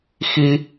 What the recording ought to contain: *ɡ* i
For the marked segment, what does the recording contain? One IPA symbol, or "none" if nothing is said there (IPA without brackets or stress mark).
x